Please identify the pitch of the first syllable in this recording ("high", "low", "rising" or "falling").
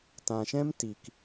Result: low